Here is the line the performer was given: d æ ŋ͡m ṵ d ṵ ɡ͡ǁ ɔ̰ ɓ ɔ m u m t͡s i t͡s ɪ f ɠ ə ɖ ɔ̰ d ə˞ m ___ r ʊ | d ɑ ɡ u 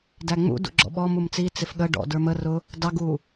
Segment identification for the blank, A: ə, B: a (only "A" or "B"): A